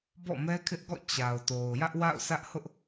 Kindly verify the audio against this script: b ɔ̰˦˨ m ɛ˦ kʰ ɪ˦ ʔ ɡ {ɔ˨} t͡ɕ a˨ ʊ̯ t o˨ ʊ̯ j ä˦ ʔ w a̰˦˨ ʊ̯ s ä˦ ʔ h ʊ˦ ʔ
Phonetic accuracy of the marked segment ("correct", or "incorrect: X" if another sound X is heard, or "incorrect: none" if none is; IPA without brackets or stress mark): incorrect: ɔ̰˦˨